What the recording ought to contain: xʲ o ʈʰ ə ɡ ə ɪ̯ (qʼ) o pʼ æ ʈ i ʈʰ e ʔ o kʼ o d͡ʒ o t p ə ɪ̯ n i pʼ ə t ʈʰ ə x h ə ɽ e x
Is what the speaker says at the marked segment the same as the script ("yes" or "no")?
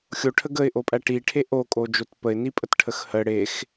no